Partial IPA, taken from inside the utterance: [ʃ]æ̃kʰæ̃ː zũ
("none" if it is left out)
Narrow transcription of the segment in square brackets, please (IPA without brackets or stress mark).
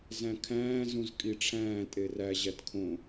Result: z